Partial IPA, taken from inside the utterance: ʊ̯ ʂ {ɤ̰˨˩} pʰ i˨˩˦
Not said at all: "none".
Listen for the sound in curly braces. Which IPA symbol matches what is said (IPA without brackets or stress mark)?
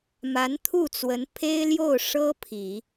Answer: ɤ˥